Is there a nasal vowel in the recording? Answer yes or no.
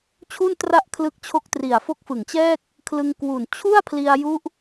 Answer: no